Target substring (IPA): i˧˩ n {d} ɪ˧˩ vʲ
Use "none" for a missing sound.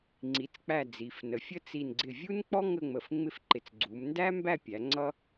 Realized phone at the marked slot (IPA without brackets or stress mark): ɡ͡ǀ